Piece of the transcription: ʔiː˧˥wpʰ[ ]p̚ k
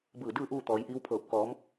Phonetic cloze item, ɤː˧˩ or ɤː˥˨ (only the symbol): ɤː˧˩